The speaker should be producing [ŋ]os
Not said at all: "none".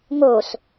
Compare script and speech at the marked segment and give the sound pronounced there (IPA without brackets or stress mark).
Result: ŋ